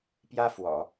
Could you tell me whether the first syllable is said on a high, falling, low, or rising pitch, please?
high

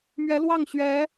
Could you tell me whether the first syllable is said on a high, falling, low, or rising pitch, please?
rising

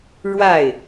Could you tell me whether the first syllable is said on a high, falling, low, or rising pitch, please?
falling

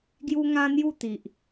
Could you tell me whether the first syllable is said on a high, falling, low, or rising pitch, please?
high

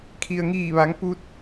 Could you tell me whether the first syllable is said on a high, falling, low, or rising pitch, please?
low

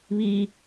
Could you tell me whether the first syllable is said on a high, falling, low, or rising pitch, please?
high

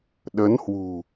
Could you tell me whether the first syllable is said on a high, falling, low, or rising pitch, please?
rising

